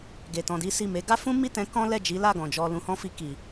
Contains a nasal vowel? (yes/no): yes